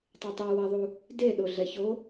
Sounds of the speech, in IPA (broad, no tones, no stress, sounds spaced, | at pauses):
tˤ i tˤ i w a ðˤ u | d e ɗ o ɮ ɛ ç o